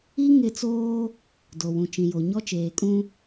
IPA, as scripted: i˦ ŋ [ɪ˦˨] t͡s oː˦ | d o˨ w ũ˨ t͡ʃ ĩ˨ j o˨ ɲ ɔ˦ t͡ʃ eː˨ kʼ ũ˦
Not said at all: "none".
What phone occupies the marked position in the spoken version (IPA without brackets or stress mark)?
ɪ˦˨